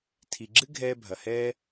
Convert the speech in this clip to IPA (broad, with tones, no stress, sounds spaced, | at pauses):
tʰ i˩ ɡ͡ǁ ɨ˥ ɡʱ ɛː˥ bʱ ɐ˩ h ɛː˥